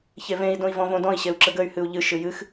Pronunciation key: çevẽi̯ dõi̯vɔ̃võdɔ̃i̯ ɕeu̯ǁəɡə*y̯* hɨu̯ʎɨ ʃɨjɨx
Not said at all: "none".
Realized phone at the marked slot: y̯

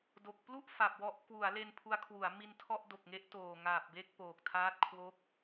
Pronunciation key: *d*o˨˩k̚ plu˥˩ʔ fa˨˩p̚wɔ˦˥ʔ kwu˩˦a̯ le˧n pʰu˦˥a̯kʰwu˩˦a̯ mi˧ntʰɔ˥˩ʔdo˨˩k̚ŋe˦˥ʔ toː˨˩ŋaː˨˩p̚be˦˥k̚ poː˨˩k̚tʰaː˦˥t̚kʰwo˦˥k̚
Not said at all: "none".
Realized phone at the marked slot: d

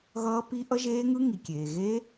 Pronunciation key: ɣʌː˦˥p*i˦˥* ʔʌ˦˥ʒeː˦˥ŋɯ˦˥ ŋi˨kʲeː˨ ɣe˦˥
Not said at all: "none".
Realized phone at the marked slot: i˦˥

